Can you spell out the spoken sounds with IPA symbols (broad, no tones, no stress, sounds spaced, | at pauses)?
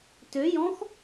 t ø j ɔ̃ x